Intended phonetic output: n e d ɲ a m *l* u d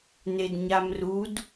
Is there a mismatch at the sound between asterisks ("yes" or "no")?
yes